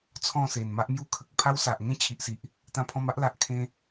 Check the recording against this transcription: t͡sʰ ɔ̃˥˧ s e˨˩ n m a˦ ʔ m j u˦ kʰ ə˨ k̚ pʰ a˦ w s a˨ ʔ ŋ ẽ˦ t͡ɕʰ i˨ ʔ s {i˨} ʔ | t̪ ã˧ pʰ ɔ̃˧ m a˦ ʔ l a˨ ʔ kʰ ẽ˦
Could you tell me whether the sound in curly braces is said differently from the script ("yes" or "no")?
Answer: no